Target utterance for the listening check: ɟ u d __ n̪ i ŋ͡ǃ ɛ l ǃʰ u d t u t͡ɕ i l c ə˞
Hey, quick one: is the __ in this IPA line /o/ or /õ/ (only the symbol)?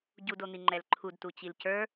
o